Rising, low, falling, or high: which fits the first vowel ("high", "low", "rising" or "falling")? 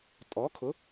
rising